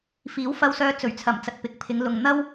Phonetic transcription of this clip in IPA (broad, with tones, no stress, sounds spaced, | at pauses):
f iː˨˥ w f ɐ˧ w s œː˧ t͡s ɵ˨˩ ɥ t͡sʰ ɐ˨˩ m t͡s ɐ˨ t̚ p ɪ˨˥ k̚ pʰ ɪ˨˧ ŋ l ʊ˨ ŋ n̪ ɐ˥ w